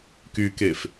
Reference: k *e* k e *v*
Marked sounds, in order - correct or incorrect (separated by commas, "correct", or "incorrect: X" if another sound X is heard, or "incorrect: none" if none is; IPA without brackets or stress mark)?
incorrect: y, incorrect: f